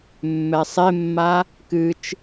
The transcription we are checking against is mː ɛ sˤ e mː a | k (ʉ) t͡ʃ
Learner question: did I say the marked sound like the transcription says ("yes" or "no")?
no